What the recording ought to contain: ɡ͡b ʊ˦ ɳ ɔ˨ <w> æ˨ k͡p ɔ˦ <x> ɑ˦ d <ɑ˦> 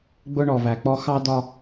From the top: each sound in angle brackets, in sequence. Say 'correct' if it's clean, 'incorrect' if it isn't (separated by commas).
incorrect, correct, incorrect